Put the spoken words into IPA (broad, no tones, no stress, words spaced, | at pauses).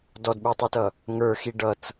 dɔdɓutˤutʌ | ŋə˞xi ɖʌt͡s